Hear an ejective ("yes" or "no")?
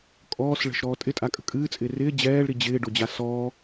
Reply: yes